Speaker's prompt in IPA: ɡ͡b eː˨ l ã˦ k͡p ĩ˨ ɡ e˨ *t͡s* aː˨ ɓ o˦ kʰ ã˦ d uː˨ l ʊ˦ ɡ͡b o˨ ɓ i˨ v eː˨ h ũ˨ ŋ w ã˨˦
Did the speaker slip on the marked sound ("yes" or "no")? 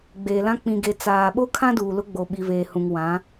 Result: no